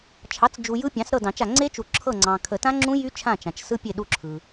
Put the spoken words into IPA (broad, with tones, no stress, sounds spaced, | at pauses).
t͡ʃʰ ɑ˩˥ t͡s d͡ʒ u˨ j ɯ˦˥ pʲ ɑ̃˩˥ s ɾ ɤ˦˨ d ɑ̃˨˩˦ t͡ʃ a˨ ŋ͡ǀ e˦˥ t͡ʃ u˨ ǁʰ ɤ˦˨ ŋ͡ǀ ɑ̃˨ kʰ ə˨˩˦ t ã˦˥ ŋ͡ǁ ũ˦˥ j y˦˥ t͡ʃʰ ã˦˨ t͡ʃ ã˨ t͡ʃ s ɯ˦˥ pʲ e˦˨ ɗ u˦˨ ǁʰ ɯ˨